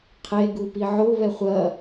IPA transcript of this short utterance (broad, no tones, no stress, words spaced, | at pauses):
qʰe ɡupiʕo βɛχʷɐ